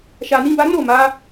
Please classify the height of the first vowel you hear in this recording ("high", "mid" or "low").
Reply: low